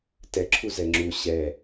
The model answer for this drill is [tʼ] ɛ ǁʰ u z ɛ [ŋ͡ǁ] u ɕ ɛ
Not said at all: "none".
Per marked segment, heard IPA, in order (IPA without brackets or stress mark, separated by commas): t, ŋ͡ǁ